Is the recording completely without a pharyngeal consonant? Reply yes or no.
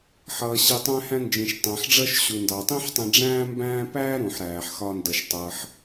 no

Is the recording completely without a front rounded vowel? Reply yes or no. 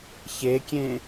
yes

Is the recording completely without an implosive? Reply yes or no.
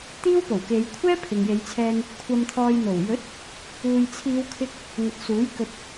yes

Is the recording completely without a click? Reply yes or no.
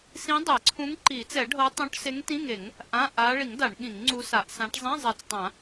no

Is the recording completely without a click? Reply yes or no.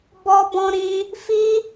yes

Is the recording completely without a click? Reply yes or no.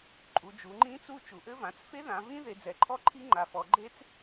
no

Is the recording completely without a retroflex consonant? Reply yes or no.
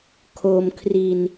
yes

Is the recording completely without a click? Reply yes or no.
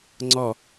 no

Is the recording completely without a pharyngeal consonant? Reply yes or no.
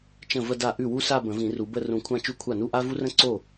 yes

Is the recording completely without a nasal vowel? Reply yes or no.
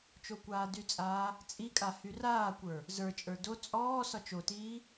yes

